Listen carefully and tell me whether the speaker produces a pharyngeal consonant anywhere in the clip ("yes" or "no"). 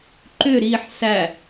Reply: yes